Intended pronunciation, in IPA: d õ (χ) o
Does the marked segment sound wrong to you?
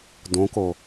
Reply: yes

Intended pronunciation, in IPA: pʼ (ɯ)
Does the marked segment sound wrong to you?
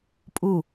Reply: yes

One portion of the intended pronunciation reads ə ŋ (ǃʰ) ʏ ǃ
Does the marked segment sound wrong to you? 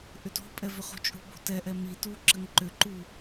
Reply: yes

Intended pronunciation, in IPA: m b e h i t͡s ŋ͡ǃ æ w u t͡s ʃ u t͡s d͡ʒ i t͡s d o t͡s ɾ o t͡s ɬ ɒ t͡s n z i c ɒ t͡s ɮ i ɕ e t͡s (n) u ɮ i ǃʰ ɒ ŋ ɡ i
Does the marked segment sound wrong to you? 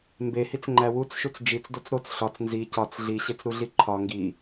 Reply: yes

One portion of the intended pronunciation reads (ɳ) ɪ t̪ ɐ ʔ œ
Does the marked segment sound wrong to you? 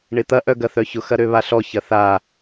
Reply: no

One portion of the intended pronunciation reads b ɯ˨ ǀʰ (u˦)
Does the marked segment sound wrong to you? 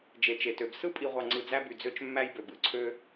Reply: yes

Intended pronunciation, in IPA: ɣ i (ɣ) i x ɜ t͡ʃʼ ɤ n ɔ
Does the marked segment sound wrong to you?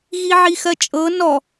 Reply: yes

